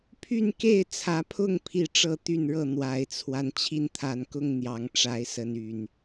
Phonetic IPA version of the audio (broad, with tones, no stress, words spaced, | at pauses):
pʰy˥˨nke˥˨ɪ̯ t͡sʰä˨˦pʰʊ˥˨ŋ pʰi˥˨ʈ͡ʂɤ˥˨t̪y˥˨nɻɤ˥˨ n̪wa˨˩ɪ̯t͡sʰwa˦n t͡ɕʰi˥˨nt̪ʰa˨˩nkʊ˥˨ŋ n̪jɑ˨˦ŋʈ͡ʂa˨˦ɪ̯ sə˨˦n y˨˩n